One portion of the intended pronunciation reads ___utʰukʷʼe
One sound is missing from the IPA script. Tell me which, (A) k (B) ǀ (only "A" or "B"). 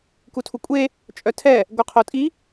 A